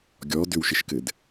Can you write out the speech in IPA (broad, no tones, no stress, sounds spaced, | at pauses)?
ɡʲ ɔ d ʏ w ʃ ɪ ʃ k ɘ d